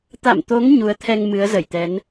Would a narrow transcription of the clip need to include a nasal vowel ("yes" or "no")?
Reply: no